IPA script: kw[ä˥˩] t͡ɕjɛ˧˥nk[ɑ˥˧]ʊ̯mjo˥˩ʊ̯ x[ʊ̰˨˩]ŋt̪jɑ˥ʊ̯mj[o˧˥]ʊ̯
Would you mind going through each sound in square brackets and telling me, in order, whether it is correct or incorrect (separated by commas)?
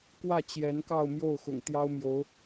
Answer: correct, correct, correct, correct